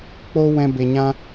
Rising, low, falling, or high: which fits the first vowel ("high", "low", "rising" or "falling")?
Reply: high